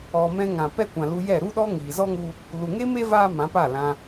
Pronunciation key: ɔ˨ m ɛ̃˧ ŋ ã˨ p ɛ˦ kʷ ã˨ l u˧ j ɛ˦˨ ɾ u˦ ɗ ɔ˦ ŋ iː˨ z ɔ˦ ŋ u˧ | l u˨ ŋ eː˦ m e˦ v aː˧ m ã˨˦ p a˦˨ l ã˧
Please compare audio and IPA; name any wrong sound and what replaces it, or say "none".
none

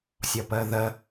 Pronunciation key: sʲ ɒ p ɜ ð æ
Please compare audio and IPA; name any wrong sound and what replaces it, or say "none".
æ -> ɜ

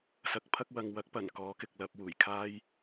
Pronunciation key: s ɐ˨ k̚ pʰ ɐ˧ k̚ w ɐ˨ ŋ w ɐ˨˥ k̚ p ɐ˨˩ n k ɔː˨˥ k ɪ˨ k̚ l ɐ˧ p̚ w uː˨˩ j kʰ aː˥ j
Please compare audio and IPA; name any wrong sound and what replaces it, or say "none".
none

